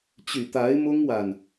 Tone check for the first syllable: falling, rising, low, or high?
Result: low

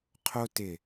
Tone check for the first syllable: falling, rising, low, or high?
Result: high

